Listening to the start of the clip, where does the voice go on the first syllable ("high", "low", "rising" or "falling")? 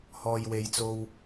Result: low